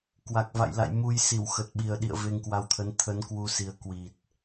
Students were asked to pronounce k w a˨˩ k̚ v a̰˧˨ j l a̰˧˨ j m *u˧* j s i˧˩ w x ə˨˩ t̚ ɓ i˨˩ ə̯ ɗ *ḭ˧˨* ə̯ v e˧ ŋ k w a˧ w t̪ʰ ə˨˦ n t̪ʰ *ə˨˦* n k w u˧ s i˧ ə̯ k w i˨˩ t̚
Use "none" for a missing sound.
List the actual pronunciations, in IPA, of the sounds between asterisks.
u˧, ḭ˧˨, ə˨˦

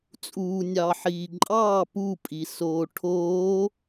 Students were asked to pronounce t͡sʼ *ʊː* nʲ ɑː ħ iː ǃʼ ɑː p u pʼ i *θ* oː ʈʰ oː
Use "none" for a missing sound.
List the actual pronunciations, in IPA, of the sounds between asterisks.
uː, s

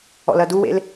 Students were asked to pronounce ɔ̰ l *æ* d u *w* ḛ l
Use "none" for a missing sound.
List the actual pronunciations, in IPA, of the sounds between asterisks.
ɐ, w

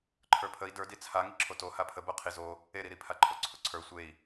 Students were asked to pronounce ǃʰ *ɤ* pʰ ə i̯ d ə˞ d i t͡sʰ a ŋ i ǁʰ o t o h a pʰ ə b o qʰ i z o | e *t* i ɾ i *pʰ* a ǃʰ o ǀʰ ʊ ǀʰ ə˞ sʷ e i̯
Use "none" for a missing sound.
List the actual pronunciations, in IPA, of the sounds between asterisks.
ə˞, ɾ, pʰ

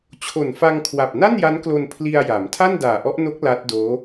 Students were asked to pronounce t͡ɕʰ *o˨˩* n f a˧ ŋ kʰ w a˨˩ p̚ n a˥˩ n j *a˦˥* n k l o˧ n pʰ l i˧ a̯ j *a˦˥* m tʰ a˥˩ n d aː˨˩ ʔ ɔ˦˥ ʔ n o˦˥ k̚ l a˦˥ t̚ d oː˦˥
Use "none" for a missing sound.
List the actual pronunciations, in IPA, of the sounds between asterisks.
o˨˩, a˦˥, a˩˦

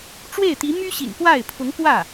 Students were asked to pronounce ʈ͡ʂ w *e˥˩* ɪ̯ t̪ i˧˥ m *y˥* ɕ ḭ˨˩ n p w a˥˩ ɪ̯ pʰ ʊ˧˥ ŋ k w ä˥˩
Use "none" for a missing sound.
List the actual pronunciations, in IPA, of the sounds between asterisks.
e˥˩, y˥

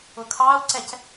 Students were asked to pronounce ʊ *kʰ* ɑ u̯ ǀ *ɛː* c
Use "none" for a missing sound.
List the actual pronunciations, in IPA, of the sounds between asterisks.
kʰ, ɛ

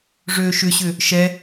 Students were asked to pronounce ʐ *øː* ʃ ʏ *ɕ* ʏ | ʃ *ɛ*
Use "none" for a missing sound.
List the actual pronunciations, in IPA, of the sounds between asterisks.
øː, ɕ, ɛ

